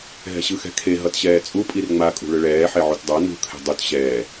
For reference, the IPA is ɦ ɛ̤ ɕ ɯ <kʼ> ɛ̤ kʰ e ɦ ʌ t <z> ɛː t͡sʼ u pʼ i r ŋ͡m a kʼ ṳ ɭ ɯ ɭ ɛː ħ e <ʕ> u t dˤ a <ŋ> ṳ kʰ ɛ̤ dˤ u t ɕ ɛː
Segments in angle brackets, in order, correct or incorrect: incorrect: x, incorrect: ɕ, correct, incorrect: n

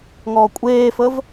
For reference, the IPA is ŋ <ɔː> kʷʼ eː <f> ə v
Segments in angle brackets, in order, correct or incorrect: correct, correct

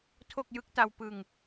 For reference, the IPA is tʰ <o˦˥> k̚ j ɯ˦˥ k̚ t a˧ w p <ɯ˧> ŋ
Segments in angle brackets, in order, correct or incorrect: incorrect: o˥˩, correct

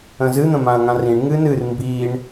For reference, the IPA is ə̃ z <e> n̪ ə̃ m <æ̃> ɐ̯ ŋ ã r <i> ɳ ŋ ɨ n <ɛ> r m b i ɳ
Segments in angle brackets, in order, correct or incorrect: incorrect: ɨ, incorrect: ã, incorrect: ĩ, incorrect: ɨ

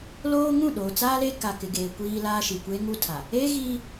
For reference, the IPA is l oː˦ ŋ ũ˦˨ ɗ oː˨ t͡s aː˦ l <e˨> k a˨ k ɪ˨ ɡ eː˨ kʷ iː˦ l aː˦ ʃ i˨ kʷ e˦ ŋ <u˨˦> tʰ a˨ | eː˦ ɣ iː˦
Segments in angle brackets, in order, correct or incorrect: incorrect: e˦, incorrect: u˦

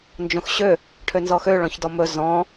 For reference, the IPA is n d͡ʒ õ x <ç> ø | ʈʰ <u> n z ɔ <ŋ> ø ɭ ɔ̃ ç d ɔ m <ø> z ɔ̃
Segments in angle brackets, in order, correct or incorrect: incorrect: ɕ, incorrect: ø, incorrect: x, incorrect: ɵ

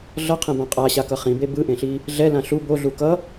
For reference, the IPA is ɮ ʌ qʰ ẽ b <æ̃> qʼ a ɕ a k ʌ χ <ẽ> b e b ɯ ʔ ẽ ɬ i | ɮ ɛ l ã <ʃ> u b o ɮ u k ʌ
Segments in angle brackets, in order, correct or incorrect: incorrect: ã, incorrect: ĩ, incorrect: ɬ

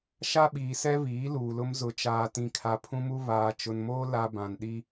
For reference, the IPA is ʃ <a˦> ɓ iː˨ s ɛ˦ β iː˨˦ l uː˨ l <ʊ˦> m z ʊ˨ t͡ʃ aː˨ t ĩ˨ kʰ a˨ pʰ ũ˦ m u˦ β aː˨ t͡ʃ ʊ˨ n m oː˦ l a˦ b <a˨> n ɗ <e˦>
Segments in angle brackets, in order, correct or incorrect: correct, correct, incorrect: ã˨, incorrect: i˦

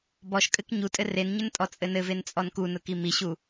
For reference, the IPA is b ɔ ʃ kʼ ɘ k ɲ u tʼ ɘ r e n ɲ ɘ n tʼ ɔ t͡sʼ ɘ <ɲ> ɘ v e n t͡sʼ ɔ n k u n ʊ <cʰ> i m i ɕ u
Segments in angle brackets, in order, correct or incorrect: incorrect: n, incorrect: k

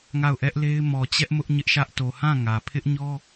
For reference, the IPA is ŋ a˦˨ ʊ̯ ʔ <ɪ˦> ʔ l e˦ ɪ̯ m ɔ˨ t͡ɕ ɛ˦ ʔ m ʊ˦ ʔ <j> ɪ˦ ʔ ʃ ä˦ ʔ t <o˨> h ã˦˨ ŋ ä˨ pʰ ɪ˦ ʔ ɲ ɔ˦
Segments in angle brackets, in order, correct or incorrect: incorrect: ɛ˦, incorrect: ɲ, correct

